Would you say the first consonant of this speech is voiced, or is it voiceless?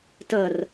voiceless